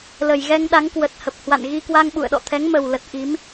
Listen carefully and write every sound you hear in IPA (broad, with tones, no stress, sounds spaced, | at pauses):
l ə˨˩ j ɣ ɛ˧ ŋ ɗ a˨˦ ŋ k w ə˨˩ t̚ h ə˨˩ p̚ h w a̰˧˨ n ɣ i˧ k w a˧ ŋ ɓ ṵ˧˨ ə̯ ɗ ɔ̰˧˨ t̪ʰ ɛ˨˦ ŋ m ə˨˩ w l ə˨˩ t̚ ʔ i˨˦ m